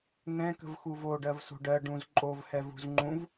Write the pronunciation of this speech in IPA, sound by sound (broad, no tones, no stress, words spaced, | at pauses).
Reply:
nɛ̃ kə̤vxuvo ɖɜvso̤ɖɜ ɖũz ǃʼovhɛvṳz ŋ͡ǃũv